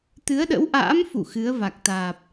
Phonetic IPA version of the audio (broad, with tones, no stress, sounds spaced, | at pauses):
t̪ ɨ˨˦ ə̯ ɗ ə̰˧˥ w ʔ a̰ː˧˥ m f ṵ˧˨ x ɨ˨˦ ə̯ v a˨˩ k̚ t̪ aː˨˩ p̚